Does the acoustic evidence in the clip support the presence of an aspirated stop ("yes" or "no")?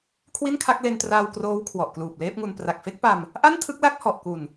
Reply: yes